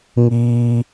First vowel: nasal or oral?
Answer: oral